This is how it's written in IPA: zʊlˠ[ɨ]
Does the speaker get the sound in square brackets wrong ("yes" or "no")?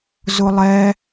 yes